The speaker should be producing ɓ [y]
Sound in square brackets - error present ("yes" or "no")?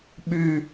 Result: no